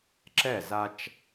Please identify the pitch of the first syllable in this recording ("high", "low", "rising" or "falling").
falling